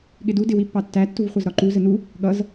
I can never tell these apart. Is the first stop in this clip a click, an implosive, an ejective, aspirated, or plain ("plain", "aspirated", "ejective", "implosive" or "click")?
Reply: implosive